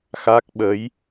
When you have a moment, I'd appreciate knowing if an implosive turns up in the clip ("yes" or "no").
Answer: yes